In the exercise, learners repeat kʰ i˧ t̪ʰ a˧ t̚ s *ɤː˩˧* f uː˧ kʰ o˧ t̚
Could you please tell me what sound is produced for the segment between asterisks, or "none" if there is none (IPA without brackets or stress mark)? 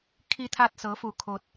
ɤː˧˥